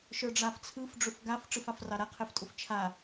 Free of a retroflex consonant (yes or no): no